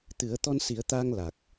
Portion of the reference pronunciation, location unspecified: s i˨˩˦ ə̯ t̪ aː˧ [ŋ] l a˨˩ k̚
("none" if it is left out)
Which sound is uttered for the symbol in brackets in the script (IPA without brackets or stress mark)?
ŋ